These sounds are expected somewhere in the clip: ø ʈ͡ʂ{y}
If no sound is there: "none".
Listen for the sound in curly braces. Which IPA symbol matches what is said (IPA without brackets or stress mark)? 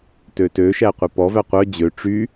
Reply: y